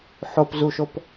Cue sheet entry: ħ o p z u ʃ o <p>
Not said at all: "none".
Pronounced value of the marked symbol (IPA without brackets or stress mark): p